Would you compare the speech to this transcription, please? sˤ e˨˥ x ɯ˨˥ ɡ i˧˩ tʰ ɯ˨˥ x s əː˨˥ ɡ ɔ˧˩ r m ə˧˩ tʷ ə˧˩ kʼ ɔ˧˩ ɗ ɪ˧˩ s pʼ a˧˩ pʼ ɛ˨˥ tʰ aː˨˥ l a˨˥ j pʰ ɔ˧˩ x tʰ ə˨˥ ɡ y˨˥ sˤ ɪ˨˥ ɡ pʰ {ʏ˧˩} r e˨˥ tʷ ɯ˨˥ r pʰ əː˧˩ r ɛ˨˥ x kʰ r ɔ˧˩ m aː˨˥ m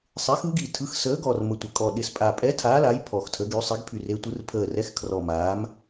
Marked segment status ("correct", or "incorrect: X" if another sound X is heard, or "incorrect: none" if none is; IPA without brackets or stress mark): incorrect: y˧˩